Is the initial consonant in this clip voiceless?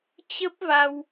yes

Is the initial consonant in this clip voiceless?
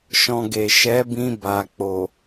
yes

